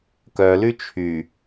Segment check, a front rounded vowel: present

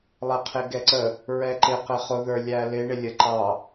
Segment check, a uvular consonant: present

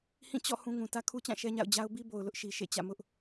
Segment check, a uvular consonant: absent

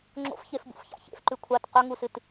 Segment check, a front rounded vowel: absent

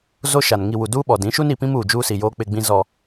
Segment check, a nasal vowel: present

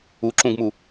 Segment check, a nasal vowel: present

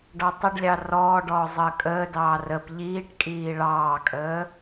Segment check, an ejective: present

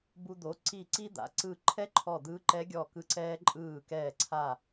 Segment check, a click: present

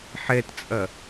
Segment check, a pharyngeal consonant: present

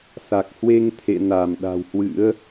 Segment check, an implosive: present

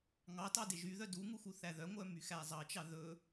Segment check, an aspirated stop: absent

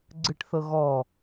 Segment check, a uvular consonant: absent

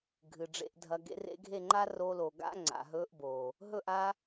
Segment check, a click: present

